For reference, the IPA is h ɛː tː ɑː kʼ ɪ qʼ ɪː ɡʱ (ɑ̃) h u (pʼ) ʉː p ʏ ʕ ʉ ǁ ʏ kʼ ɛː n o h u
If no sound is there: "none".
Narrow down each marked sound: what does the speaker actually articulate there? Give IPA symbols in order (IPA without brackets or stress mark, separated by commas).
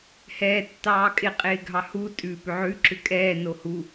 ɑ, tʼ